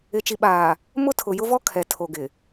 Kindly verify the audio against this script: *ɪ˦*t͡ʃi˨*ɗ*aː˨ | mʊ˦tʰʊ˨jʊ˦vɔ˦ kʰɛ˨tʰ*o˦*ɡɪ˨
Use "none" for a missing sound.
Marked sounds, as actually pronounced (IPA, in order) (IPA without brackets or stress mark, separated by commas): ɪ˨, ɓ, o˨